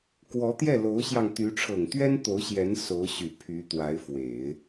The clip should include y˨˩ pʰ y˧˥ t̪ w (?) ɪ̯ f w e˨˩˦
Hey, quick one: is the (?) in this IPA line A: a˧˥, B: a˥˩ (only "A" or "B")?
A